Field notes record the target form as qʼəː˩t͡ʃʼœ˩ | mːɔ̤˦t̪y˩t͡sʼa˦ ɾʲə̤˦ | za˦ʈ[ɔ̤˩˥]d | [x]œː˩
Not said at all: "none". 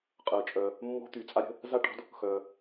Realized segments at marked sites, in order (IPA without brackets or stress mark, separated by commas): ɔ̤˩˥, x